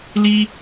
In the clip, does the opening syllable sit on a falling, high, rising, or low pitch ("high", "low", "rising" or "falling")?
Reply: high